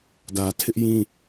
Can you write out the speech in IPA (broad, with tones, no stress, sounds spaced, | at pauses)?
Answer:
d ä˨ tʰ ɪ˦ ʔ j ĩ˦